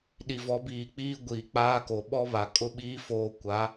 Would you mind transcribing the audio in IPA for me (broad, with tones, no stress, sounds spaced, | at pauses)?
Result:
ɗ i˨ v ɔ˨˦ b iː˨ k͡p iː˦ ɡʷ iː˨ k͡p aː˦ k o˨ ɓ ɔ˦ β a˨ kʼ ʊ˦ ɓ iː˦ f oː˦ kʷ a˨˦